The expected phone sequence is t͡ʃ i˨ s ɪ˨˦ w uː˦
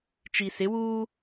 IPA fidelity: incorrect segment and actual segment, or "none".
none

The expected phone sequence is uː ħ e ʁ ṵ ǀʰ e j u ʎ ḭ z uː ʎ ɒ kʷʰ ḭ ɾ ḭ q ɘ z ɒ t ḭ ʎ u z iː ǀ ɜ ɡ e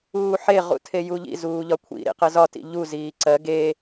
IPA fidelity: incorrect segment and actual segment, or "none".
ǀʰ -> tʰ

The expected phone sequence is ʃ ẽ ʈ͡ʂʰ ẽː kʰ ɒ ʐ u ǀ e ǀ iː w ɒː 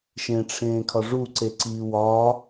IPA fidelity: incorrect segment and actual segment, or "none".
none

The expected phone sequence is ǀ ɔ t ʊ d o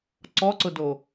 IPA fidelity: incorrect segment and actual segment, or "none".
t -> ǀ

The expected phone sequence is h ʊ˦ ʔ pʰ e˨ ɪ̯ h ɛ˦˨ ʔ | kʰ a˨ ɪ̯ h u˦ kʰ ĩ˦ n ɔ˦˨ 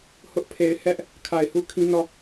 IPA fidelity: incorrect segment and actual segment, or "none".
ɛ˦˨ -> ɛ˦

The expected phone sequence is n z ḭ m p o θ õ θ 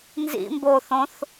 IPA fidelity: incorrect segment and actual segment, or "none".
p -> b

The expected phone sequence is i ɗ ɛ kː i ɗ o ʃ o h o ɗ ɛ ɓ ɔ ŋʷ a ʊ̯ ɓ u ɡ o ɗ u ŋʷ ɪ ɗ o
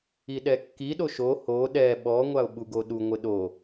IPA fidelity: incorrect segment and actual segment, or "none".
none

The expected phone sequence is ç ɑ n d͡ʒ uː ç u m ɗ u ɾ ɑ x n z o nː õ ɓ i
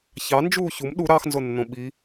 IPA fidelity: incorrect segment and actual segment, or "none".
none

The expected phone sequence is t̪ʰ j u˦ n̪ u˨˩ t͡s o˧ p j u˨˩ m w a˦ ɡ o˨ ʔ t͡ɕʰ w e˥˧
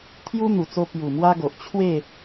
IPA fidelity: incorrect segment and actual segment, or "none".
none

